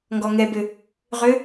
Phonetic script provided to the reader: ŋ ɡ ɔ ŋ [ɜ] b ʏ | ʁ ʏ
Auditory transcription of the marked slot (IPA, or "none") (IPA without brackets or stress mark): ɛ